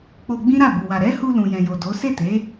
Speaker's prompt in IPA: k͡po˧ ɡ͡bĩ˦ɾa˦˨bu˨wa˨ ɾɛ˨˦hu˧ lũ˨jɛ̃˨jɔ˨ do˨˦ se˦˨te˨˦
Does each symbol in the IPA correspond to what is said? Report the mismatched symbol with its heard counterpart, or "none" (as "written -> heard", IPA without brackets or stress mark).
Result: ɔ˨ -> o˨